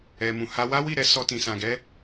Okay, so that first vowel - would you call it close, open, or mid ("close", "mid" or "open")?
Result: mid